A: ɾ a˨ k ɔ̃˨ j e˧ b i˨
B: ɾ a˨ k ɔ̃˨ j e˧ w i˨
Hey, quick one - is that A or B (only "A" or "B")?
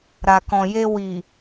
B